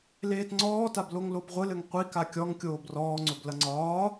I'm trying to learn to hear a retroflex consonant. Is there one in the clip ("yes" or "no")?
no